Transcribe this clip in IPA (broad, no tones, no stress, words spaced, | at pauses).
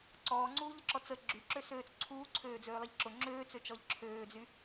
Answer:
ǀɔːŋ͡ǀuːʎʊǁɔ t͡sə ɡ͡ǁyǁøsøːt͡s ǀʰuːǀʰøːd͡zøːlˠɪʎ ǁʊ ŋ͡ǁøːt͡søt͡ʃɔʎ ǁʰøːd͡zy